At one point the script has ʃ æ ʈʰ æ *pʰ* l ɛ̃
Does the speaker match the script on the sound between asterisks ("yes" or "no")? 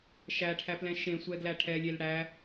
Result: no